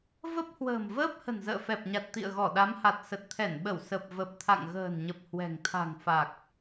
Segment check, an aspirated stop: present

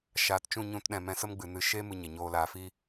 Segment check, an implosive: present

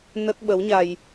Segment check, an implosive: present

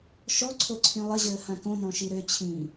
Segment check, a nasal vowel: present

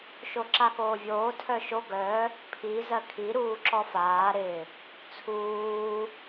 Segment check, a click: present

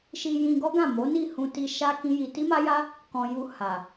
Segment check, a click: absent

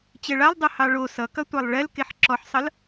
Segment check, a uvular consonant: absent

